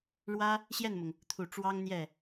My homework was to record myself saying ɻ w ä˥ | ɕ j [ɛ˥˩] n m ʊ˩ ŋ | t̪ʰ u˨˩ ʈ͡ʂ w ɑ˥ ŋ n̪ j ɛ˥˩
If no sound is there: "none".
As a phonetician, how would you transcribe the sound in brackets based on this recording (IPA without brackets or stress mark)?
ɛ˥˩